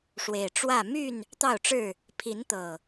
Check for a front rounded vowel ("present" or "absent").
present